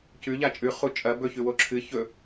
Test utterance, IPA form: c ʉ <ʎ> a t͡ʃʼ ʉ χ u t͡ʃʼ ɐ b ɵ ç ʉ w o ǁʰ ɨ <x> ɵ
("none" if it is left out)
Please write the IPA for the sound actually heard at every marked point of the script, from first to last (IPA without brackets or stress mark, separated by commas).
ʎ, ç